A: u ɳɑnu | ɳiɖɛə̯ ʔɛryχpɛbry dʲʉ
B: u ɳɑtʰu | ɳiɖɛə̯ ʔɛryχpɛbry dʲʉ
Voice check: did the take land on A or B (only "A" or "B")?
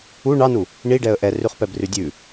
A